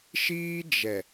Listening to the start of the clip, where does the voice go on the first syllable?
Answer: high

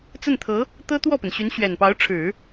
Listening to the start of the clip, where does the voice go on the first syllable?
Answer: falling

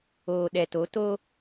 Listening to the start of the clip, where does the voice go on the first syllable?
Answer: low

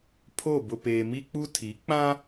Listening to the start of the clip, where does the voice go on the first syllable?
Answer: falling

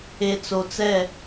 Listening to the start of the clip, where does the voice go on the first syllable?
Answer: low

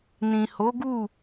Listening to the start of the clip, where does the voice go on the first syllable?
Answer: low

